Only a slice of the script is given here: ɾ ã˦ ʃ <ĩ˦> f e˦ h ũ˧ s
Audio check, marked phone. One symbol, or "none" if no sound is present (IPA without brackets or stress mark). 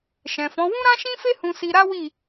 ĩ˦